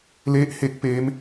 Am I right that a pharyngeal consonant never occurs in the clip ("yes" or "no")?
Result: yes